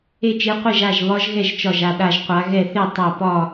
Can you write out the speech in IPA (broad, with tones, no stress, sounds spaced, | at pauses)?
e˥˧ t͡ʃ e˦˥ qʷ e˥˧ ʒ a˥˧ ʒ β ɒ˦˥ ʒ ɣ ɛ˥˧ ʒ t͡ʃ ɒ˥˧ ʒ a˥˧ ɗ a˥˧ ʒ qʷ a˦˥ ɣ ɛ˥˧ θ e˥˧ tˤ a˥˧ p ɒ˥˧